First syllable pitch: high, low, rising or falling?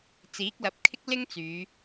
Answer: rising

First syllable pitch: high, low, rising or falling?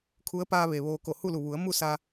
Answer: rising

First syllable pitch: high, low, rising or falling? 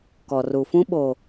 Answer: low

